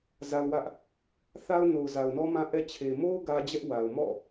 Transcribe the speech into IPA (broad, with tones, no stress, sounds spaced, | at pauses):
z a˦ ʊ̯ w ä˦ ʔ | θ a˦ ʊ̯ n o˨ ʊ̯ z a˨ ʊ̯ n ɔ˦ m ã˦ ʔ ɛ˦ t͡ɕʰ e˨ m o˦ ʊ̯ ɡ ä˦ d͡ʑ ɛ˦ ʔ w a˨ ʊ̯ m ɔ̰˦˨